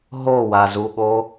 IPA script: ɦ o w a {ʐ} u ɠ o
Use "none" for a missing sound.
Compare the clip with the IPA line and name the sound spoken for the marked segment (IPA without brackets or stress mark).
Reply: z